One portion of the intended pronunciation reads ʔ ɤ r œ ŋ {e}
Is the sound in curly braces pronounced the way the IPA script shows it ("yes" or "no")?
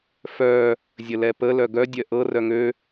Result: no